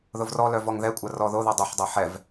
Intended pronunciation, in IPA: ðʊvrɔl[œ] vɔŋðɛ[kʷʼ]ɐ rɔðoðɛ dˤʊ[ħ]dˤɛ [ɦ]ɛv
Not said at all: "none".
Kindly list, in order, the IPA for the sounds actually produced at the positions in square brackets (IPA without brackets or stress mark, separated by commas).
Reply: œ, kʷʼ, ħ, ħ